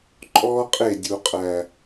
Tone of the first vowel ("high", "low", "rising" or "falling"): high